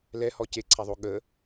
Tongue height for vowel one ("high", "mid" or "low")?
mid